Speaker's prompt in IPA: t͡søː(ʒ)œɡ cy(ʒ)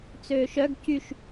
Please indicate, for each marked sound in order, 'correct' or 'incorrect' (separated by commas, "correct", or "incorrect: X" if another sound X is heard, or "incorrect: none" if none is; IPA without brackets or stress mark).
incorrect: ʃ, incorrect: ʃ